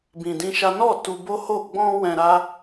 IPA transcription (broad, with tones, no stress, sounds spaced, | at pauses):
b ĩ˧ d ĩ˦ ʃ a˦ n ɔ˦˨ t u˧ b o˦ h o˦˨ ɡ͡b ɔ̃˧ w ɛ̃˧ ɾ a˦